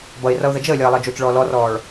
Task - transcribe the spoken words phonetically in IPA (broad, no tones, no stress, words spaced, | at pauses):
bʌɪ̯rʌʊ̯ ðəd͡ʒəːlʲʌː lˠəːd͡ʒot͡ʃɭɔː lɔrɔːɭ